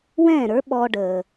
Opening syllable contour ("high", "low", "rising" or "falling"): falling